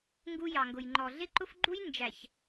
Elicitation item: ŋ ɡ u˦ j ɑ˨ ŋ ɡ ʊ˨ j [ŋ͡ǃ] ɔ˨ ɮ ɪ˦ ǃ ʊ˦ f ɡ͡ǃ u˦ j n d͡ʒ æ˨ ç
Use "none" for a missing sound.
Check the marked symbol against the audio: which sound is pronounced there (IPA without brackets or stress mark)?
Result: ŋ͡ǃ